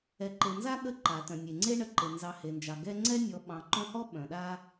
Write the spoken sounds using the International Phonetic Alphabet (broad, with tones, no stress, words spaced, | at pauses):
ɛ˨ǃe˨ nza˥ɠə˦ ǃa˩ tœ̃˩nʲe˩ŋ͡ǀe˦ ɳə˨ǃe˩ nzɑ˨he˩nd͡ʒɑ˩ ɡɛ˦ ŋ͡ǀɛ˦nʲɔ˨ ɓɑ̃˨ǃœ̃˦hɔ˥ ɓœ̃˩ɗa˦